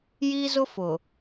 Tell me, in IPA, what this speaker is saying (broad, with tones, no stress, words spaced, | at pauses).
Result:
jiː˦zʊ˦fʊ˨